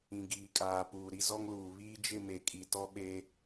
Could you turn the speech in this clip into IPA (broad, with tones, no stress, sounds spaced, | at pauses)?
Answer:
ĩ˨ ɡ iː˨ kʼ aː˨ p uː˨ ɾ i˦ z ɔ˦ ŋ l uː˨ β iː˦ d͡ʒ ɪ˦˨ m e˨ kʼ i˨ t ɔ˦ ɓ e˦